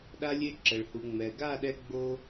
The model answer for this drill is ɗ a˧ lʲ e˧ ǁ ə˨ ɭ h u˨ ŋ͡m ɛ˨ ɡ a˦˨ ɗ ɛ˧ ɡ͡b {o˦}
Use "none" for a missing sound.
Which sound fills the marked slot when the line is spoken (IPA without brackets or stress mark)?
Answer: o˦